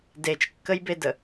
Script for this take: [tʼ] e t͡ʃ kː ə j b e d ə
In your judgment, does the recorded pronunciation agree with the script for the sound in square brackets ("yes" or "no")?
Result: no